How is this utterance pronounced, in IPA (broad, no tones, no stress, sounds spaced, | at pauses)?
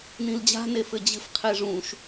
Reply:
n ĩ l d͡ʑ a̤ n e f ɘ d͡ʑ ɨ f qʰ e ʐ ũ ʃ